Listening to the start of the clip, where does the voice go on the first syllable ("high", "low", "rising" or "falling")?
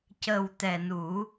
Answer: low